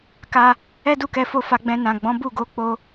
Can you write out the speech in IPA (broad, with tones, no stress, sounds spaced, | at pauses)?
k a˦ | ɛ˦ d u˦˨ k ɛ˧ f o˧ f a˧ ɡ͡b ɛ̃˧ n ã˨ ɡ͡b ɔ̃˨˦ b u˦˨ ɡ o˨˦ k͡p o˧